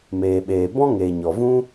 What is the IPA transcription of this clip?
m eː˨ ɓ eː˨ b ɔ̃˦ ŋ eː˨ ɲ ɔ˨ v ũ˦

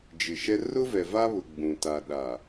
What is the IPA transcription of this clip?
d͡ʒ ɪ˨ ʃ ɛ˦ r ʊ˦ v ɛ˨ v a˦ β ʊ˨ ɡ͡b ũ˨ t a˨ ɗ a˨

